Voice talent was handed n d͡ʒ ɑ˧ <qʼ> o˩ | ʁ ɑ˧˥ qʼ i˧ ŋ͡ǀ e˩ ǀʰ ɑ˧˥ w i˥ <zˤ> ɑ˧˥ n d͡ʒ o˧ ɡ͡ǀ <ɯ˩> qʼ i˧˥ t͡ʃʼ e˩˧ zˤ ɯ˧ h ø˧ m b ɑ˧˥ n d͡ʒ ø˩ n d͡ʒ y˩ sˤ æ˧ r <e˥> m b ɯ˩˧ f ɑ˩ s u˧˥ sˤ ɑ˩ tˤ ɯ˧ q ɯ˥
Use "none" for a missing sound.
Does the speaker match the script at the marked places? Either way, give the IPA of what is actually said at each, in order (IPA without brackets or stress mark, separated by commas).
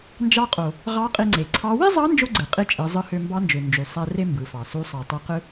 qʼ, zˤ, ɯ˩, e˥